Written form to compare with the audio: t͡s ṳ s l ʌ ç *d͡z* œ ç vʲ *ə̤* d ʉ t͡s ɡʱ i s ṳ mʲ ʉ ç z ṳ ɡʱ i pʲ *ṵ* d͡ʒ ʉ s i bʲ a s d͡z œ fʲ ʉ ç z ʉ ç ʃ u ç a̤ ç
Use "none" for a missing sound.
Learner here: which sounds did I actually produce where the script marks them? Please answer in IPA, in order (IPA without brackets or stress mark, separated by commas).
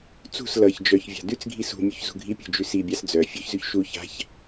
d͡ʒ, a̤, ṳ